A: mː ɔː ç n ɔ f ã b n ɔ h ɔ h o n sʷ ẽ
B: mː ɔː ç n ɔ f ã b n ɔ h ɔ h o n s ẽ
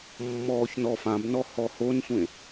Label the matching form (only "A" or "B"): A